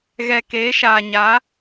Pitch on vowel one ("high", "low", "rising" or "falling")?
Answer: low